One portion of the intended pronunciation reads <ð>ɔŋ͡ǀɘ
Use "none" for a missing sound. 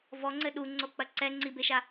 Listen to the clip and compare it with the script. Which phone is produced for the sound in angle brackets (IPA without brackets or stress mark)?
v